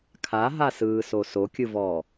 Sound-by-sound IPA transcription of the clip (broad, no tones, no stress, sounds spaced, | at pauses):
kʰ a ɦ a s ɯː s o s o kʲ ɯ v ɔː